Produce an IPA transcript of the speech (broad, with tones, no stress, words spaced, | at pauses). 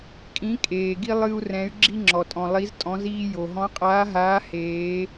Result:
kʼĩ˨˥kʼeː˩ɡi˦ lˠɨ˦u̯rɛ̃˨˥y̯ ɡ͡ǁi˦ŋ͡ǁɔ˩tʼɔ̃˩ lˠi˨˥ztʼɔ̃˨˥ziː˦ jo˩ɦɔ̃˨˥qʼaː˨˥ɦaː˨˥ heː˨˥